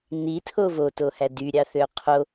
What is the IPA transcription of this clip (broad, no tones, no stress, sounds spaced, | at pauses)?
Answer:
n i tʰ o v o t o h æ d y ɾʲ ɑ θ ø qʰ o